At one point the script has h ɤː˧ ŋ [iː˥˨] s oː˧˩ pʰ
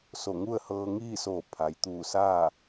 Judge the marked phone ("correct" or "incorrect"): correct